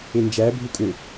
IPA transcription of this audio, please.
end͡ʒæ bʱukʼø

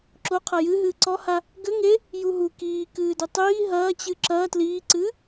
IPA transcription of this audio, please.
ǁo qʰɐjɨɦɨː ǀɔha | ɡɘ ŋe | juɦu kiː kɨːdɘtˤiː ɦɐːt͡ɕɨ ǁɐː tliːǀɨː

